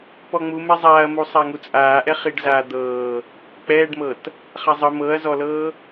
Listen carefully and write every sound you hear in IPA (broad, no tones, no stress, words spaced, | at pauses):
pɔŋ͡mumɛ zˤaːɐ̯mu sˤaŋut͡sʼaːʔɛ χiɖzaːd̪ɤː | k͡pɛːɖmɤt | χazˤɯ mɤɐ̯zɔlɤː